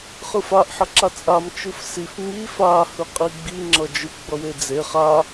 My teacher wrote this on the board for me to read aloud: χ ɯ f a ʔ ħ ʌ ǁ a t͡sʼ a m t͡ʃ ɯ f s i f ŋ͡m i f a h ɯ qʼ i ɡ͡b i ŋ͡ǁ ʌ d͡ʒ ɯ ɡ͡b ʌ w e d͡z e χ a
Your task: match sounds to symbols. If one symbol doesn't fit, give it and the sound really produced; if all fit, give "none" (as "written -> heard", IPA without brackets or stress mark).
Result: none